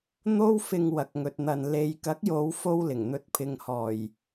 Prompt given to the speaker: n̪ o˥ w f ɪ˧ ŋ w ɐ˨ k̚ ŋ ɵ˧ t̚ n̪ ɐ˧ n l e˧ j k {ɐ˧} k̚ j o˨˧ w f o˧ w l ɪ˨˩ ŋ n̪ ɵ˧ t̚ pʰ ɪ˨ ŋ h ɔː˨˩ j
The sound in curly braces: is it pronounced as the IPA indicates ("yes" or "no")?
no